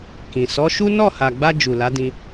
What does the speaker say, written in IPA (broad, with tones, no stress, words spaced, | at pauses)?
kĩ˨ sɔ˨˦ʃu˦ nɔ˦˨ha˨ɡ͡ba˧ d͡ʒu˨la˨˦dĩ˧